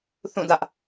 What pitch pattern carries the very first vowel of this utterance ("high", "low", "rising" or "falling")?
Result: falling